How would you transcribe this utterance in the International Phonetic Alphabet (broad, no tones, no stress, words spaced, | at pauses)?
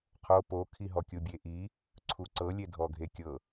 qʰo pokʰiɦɔ kʲubʲeʔi | ǀʰuǀɤlʲe dʱɔɡʱekʲɤ